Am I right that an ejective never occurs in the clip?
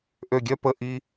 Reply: yes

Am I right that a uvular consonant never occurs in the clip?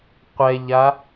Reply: no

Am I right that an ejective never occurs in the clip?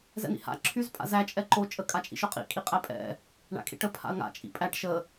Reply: no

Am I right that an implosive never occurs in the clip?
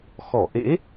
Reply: yes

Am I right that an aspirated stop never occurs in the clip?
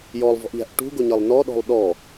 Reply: yes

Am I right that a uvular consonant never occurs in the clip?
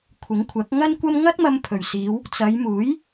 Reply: yes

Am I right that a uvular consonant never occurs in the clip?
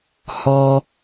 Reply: yes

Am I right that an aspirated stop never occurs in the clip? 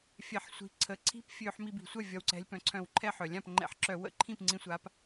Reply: no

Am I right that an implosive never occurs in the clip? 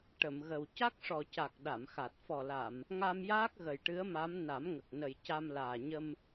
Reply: no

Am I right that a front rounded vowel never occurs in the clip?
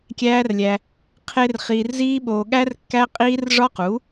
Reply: yes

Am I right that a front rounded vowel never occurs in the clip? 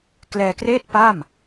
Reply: yes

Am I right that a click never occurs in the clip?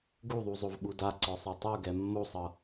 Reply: no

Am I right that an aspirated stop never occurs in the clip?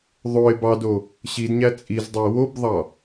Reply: yes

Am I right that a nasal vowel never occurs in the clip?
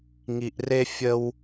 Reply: yes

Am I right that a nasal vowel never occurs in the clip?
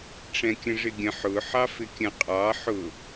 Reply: no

